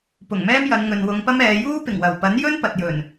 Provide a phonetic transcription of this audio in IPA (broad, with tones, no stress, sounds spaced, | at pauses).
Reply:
p ʊ˨˩ ŋ m ɛː˥ m j ɐ˨˧ n ŋ ɵ˨ n w ʊ˨˧ ŋ p ɐ˥ m ɛː˨˧ j uː˥ p ɪ˨˩ ŋ w ɐ˨˩ w p ɐ˨˥ n j ɵ˥ n p ɐ˨ t̚ j ɵ˨˩ n